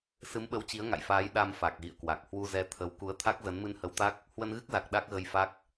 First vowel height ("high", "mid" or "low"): high